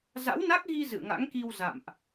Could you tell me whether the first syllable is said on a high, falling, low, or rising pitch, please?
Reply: rising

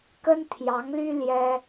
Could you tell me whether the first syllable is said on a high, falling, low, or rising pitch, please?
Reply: high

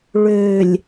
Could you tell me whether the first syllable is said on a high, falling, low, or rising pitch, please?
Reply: low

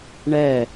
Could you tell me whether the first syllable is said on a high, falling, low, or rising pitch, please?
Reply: falling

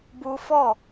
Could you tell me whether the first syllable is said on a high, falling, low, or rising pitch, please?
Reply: high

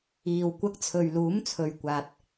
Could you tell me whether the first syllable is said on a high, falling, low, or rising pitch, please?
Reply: low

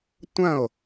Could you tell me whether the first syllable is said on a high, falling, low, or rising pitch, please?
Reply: falling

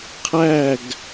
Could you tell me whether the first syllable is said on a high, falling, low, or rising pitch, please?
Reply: falling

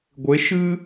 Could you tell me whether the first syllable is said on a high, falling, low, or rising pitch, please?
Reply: rising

